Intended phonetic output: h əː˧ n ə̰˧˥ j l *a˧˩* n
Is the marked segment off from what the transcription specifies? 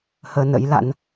yes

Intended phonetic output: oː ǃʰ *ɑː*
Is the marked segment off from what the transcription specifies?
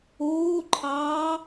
no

